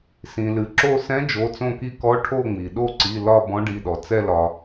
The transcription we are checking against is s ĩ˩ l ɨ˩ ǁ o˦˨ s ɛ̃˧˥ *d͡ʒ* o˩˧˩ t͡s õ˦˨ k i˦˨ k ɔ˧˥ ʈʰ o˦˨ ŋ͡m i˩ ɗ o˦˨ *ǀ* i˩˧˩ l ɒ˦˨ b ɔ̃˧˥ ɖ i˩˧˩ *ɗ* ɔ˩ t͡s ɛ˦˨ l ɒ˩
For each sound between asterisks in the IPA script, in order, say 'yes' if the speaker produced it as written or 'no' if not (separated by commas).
yes, yes, yes